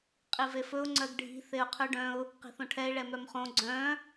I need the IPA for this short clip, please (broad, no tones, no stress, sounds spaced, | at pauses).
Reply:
qʼ i v e f ɵ ʊ̯ ŋ͡ǀ œ ɡ ɖʱ i̤ θ e ʊ̯ qʰ ʉ ɖ œ̃ ʊ̯ | q i̤ θ õ ʈʰ ɛ ɪ̯ ɭ ɛ m œ m χ õ ɡ͡ǀ œ̃